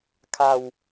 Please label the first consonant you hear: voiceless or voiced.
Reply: voiceless